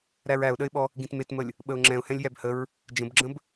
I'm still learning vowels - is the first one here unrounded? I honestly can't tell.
yes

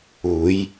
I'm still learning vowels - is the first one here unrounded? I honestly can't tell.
no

